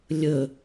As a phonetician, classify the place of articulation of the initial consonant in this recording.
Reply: alveolar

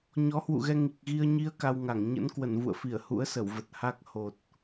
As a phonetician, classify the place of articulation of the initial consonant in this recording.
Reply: palatal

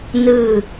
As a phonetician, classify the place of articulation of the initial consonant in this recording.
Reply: alveolar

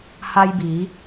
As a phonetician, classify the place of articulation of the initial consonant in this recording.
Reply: glottal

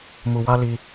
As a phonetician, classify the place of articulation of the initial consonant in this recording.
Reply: labial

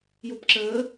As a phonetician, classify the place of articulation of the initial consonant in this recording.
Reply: palatal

